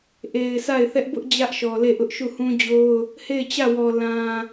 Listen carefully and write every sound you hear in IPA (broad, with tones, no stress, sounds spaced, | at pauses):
ʔ e˨ ɪ̯ sʰ a˦˨ ɪ̯ θ ɛ˦ ʔ b ʊ˦ ʔ d͡ʑ ä˦ ʔ ʃ ɔ˨ l e˦˨ ʔ ʊ˦ ʔ ʃ u˦˨ h ũ˦ d͡ʑ o˦ ʊ̯ | h e˦˨ ɪ̯ t͡ɕ ä˦˨ w ɔ˨ l ã˨